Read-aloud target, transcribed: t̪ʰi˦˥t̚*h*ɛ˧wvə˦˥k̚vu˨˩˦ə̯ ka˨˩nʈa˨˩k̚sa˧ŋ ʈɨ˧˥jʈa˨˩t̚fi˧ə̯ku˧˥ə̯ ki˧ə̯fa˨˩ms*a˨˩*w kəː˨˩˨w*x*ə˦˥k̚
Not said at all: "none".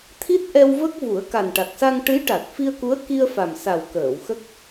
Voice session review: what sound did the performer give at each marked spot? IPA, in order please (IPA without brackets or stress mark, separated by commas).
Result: ʔ, a˨˩, x